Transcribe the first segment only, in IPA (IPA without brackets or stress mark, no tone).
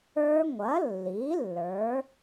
ə˞